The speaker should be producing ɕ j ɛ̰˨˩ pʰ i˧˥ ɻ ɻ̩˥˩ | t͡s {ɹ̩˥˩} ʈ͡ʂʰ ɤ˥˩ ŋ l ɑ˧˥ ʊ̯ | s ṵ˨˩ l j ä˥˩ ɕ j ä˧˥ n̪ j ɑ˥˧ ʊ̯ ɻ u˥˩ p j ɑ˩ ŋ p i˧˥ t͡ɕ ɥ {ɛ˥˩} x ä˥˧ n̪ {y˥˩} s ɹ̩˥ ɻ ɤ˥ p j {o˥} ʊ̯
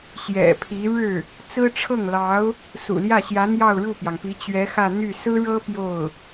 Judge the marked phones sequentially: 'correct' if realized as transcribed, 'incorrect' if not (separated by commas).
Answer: incorrect, incorrect, correct, incorrect